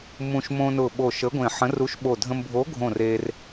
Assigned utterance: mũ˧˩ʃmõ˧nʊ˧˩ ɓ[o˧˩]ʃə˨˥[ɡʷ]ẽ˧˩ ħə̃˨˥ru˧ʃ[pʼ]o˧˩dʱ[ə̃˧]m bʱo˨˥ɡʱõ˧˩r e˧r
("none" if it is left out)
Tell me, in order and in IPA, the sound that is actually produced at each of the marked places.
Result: o˧˩, ɡʷ, ɓ, ə̃˧

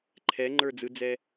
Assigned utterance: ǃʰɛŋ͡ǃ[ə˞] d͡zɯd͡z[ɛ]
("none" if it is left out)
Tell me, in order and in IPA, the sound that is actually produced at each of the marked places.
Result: ə˞, ɛ

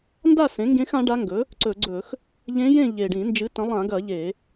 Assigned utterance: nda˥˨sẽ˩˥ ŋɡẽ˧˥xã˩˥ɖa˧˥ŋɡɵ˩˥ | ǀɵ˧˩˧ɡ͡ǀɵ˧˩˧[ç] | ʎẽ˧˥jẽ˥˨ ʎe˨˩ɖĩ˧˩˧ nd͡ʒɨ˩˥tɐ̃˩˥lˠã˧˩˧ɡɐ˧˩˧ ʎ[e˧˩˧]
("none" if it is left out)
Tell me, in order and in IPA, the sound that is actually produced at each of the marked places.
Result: x, e˧˩˧

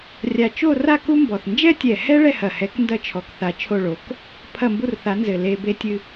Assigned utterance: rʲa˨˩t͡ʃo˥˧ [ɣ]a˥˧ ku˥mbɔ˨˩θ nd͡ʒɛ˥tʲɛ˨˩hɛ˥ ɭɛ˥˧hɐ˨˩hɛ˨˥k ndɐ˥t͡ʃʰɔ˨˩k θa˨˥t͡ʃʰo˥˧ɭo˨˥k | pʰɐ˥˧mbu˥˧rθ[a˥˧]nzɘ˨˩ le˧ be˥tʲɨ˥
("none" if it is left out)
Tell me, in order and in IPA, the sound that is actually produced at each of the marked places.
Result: r, a˨˥

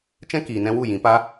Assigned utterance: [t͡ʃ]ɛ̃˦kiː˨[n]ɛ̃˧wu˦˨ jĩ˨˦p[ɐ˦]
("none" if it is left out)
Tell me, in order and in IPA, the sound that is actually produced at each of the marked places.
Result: t͡ʃ, n, a˦

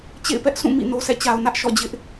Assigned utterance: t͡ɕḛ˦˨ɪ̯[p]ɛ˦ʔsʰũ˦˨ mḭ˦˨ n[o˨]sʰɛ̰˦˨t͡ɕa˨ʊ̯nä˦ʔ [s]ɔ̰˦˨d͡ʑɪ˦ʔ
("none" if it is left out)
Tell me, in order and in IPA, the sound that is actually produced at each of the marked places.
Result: p, o˨, ʃ

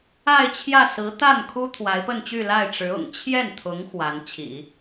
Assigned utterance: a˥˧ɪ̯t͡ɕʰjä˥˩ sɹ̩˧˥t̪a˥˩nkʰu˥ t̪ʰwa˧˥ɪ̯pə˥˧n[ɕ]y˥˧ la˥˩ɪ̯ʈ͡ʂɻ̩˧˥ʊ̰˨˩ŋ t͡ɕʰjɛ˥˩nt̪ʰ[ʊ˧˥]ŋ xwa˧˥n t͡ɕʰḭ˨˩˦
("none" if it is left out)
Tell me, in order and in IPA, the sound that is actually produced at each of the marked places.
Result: t͡ɕ, ʊ˧˥

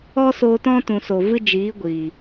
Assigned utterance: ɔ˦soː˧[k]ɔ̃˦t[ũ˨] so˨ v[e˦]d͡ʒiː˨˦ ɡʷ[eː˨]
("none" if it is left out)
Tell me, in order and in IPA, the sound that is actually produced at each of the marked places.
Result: t, ũ˨, ɨ˦, iː˨

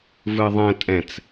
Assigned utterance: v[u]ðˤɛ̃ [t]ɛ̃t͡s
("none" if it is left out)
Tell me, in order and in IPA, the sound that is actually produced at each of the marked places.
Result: ɯ, tʼ

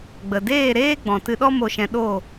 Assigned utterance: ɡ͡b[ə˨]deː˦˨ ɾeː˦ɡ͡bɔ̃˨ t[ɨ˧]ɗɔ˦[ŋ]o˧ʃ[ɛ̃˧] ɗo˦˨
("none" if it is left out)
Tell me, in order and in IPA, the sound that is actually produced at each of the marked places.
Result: ə˨, ɨ˧, m, ɛ̃˧

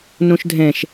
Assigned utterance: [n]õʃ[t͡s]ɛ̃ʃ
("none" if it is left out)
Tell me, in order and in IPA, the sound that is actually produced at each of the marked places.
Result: n, dʱ

